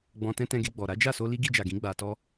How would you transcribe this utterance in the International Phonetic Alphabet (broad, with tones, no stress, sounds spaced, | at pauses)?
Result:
ɡ͡b ɔ̃˨ t ɛ̃˧ t ɛ̃˧ ɡ e˧ ɡ͡b ɔ˨ ɾ a˨˦ d͡ʒ a˦˨ s o˧ l i˦ ɡ i˧ d͡ʒ a˨ ɡ ĩ˨˦ ɡ͡b a˧ t ɔ˦